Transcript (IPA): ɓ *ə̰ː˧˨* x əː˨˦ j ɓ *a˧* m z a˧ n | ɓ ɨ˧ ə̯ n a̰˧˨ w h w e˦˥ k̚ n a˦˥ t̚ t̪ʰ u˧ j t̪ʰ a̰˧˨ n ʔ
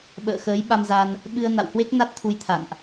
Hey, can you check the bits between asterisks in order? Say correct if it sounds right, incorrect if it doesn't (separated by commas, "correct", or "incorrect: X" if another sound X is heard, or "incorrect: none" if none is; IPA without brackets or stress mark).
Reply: correct, correct